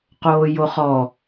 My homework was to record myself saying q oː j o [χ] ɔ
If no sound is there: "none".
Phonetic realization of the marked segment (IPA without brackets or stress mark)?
χ